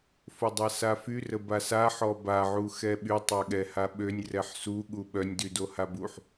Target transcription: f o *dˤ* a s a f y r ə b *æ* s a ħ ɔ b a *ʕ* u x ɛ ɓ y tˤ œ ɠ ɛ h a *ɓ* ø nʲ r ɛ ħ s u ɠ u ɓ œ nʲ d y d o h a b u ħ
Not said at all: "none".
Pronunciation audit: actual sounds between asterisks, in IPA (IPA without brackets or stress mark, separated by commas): dˤ, a, ʕ, ɓ